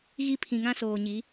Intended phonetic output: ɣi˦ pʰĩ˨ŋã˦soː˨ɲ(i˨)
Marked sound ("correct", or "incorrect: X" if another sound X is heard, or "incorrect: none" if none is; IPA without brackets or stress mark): incorrect: i˨˦